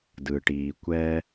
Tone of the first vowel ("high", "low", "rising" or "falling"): low